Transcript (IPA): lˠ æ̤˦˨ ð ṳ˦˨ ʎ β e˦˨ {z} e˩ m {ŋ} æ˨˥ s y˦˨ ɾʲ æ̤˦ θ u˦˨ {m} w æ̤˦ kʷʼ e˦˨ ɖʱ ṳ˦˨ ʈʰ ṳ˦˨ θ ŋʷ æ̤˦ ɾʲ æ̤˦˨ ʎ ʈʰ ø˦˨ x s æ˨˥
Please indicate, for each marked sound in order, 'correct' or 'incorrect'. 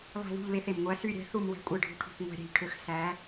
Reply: incorrect, incorrect, correct

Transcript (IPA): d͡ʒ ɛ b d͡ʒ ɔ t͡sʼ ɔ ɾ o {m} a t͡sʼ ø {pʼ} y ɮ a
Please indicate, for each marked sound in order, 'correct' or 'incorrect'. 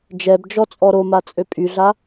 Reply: correct, correct

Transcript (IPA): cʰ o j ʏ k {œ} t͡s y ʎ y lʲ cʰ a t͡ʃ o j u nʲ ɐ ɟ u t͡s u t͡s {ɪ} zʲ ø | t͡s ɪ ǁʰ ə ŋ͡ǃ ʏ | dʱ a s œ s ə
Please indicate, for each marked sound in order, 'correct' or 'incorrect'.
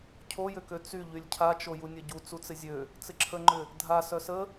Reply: incorrect, correct

